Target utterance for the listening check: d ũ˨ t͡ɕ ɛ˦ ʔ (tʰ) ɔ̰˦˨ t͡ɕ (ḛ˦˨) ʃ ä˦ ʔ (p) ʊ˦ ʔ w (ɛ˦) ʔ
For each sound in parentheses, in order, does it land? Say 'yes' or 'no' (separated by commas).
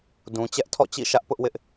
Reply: yes, no, yes, no